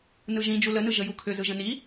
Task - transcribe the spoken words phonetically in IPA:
n ɯ ʒ ĩ d͡ʒ u l ə n ɯ ʒ ə j u kʰ ʏ z ɯ ʒ ə̃ n i

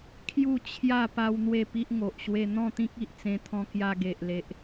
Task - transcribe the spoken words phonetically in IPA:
kʰ j u˥˧ t͡ɕʰ j a˥˧ p a˦ w n̪ w e˥˧ p i˦ ʔ ŋ o˨ ʔ ɕ w e˧ n̪ ɔ̃˥˧ t̪ ĩ˦ k̚ i˨ ʔ t͡s ẽ˧ t̪ʰ ɔ̃˧ k j a˧ ɡ e˨ ʔ l e˨ ʔ

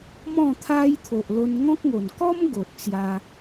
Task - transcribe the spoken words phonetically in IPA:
m ɔ̃˥˧ t̪ʰ a˦ j t̪ʰ o˨ ʔ l o˧ n ŋ ɔ̃˦ k̚ ŋ o˨˩ n k ɔ˦ m ɡ o˨ t̚ t͡s j a˧

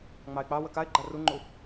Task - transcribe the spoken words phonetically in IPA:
ŋ͡m ɑ ɪ̯ k͡p ɑ w ə k a ɪ̯ ɡ͡ǃ a r u ŋ͡ǃ u

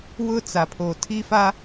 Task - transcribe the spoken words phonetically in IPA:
w ʊ˦ t͡s a˨ pʰ o˨ tʰ i˦ f a˦

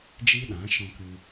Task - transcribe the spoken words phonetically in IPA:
d͡ʒ iː˦ ɗ ã˨˦ ʃ ɔ̃˧ k ɨ˧

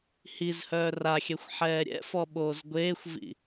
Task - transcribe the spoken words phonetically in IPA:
h i z h œː r a xʲ ɛ xʷ ħ ɛː ɾʲ ɛ̰ f ɔ ɓ oː z ɡʷ eː xʷ v ḭ

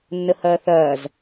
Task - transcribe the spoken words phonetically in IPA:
nː ə h ɐː θ ɐː z

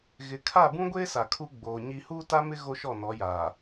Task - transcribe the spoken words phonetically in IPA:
ɣ ɪ˨ kʰ a˦˨ b ũ˦ ɡʷ eː˦ s a˨ kʰ u˦ ɡ͡b oː˨ ɲ i˦ h uː˦ t a˦ m ɪ˦ ɣ o˦ ʃ ɔ˦˨ n ɔ˨˦ j aː˨

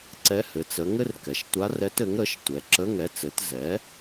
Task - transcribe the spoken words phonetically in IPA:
ǀ ɛ˧˥ h ɘ˩˧ t͡s ə˩˧ ŋ ɘ˥ r k ɛ˩˧ ʃ tʷ a˧˥ r ɛ˧˥ t ɘ˩˥ ŋ ɾ ə˩˥ ʃ tʷ ɛ˩˧ ǁ ə˧˥˧ ŋ ɛ˩˥ t͡s ɘ˩˥ t z ɛ˩˥

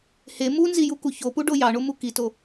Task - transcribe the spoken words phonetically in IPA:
h e m u n z i j u k u ç o p u ɖ o j ɑ ɳ o m u k i t o

